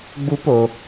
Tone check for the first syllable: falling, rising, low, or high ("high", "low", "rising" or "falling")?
high